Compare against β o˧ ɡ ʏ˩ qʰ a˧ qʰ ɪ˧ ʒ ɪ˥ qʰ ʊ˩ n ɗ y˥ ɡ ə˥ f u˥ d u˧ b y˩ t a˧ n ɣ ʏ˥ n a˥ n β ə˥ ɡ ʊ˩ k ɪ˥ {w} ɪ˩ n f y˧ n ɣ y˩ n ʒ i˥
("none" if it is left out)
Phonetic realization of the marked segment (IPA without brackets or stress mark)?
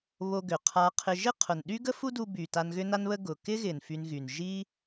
ɣ